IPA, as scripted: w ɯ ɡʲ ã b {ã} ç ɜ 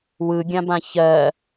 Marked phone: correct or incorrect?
correct